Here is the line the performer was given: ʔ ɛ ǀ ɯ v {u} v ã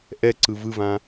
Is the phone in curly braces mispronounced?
yes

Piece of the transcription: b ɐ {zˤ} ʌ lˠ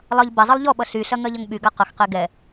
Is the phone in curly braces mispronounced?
no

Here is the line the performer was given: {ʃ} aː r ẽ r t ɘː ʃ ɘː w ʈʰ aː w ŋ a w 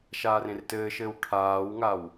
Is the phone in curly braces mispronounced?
no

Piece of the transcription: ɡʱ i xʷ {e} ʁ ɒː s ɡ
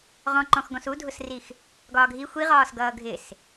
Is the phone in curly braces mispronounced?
yes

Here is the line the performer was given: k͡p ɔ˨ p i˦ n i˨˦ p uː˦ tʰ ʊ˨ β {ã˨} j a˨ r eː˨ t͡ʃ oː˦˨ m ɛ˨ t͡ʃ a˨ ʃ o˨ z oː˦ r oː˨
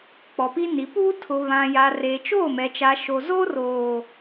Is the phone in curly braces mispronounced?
no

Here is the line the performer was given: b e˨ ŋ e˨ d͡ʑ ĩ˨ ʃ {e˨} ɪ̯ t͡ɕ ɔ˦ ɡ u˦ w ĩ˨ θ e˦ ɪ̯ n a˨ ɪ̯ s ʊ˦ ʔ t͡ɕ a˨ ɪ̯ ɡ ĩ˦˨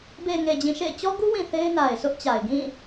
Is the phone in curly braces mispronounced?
yes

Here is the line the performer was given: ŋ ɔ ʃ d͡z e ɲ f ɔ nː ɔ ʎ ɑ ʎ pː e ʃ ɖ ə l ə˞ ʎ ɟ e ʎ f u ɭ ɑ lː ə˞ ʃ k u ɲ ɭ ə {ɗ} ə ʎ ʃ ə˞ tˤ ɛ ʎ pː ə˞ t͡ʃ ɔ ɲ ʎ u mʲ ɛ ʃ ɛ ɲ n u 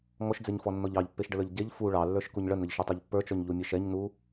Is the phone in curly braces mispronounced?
yes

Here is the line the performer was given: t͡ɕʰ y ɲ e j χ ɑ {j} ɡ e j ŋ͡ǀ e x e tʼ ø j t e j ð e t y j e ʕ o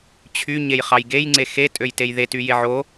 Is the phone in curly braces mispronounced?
no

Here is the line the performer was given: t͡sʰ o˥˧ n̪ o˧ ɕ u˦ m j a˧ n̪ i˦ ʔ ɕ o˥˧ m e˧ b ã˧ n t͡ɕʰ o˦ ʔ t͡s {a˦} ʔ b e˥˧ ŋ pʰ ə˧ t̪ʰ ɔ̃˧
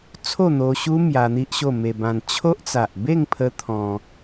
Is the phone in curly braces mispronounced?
yes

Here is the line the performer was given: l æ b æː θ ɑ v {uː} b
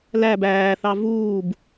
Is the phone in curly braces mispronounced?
no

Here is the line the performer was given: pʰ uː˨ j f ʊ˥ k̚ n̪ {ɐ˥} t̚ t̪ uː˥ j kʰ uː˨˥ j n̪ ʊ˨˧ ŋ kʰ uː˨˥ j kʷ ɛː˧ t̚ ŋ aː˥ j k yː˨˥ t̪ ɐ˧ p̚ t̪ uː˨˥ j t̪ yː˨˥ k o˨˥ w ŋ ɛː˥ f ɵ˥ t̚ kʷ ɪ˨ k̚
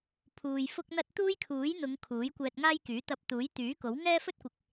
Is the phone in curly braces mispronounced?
no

